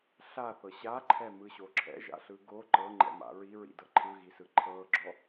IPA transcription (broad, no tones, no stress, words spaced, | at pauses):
ɬaθɤ ɕaǃʰɛmɯɕo ǁʰɛ̰ʒa̰ɬɯ ɡo ǃɤŋ͡ǃɛ̰ma̰ ɹiɹḭdɤ ǃʰɯɣisɯ ǃʰɤɡ͡ǁɔ